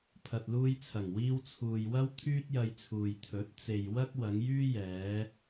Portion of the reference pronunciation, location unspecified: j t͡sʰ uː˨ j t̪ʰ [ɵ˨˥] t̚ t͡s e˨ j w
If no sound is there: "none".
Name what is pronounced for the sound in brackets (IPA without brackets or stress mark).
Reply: ɵ˨˥